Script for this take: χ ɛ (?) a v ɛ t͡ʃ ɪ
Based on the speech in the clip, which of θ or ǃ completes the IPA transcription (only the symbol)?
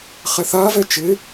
θ